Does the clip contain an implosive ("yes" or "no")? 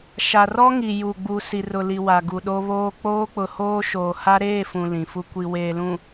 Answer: yes